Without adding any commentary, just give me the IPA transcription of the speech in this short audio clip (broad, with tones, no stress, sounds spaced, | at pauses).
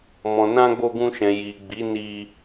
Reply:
m ɔ̃˨ n ã˧ ɡ͡b o˧ ɡ ũ˧ ʃ ɛ̃˨ j i˨ ɡ͡b i˨˦ n i˧